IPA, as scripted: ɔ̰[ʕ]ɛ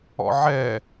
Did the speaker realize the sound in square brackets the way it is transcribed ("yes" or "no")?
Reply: yes